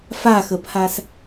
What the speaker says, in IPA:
f a x ə pʰ a s

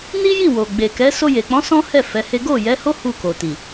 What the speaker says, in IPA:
n i˦ j i˦˨ w o˨ ɡ͡b e˨ k ɛ˨˦ s o˧ j e˨ k͡p ɔ̃˨˦ s ɔ̃˦ h ɛ˦˨ f ɛ˨˦ h e˦ ɡ o˦˨ j ɛ˨˦ h o˦ h u˦˨ k o˨ t i˨

